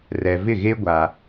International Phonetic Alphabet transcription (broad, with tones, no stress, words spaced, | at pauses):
rɛ˨vɪ˦˨ɣe˦ ɡʷa˦